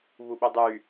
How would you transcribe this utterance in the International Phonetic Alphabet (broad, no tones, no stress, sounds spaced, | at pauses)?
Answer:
β u ɓ y dˤ y